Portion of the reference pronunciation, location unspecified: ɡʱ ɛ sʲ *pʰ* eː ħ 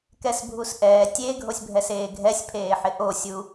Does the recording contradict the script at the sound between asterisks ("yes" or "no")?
no